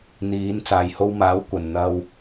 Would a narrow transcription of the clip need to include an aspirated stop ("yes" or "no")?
no